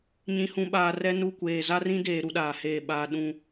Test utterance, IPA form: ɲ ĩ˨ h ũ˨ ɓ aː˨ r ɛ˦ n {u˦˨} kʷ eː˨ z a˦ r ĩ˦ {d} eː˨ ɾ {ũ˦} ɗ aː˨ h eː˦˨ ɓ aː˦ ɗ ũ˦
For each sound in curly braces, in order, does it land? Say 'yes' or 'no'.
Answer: yes, yes, no

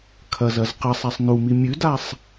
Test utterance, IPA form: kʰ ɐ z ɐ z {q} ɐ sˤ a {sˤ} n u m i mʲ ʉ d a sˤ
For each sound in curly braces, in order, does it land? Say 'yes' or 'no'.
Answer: yes, yes

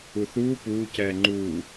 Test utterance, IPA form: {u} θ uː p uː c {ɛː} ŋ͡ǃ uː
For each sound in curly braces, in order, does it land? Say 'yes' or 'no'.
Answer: yes, yes

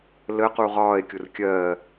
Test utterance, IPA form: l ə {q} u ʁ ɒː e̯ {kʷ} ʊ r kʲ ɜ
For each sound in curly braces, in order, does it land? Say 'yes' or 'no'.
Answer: yes, no

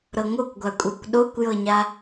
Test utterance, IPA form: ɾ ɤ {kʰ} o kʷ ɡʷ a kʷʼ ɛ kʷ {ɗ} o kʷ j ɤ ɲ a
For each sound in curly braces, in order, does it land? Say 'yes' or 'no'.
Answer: no, yes

